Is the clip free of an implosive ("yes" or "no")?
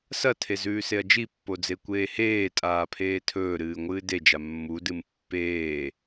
yes